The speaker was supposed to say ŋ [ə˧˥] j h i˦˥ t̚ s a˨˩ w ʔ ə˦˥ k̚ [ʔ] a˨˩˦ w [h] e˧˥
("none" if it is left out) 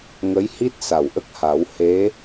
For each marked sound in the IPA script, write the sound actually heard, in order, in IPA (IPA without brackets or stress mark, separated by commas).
ə˧˥, h, h